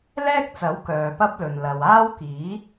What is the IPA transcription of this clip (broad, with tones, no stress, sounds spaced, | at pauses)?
l ɛː˥ k̚ t͡s ɐ˨˥ w k œː˨ p ɐ˥ p̚ l ɵ˨ n l ɐ˨ w aː˥ w k iː˨˥